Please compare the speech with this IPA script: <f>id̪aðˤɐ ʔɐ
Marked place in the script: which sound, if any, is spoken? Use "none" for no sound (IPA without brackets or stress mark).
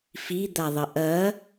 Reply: f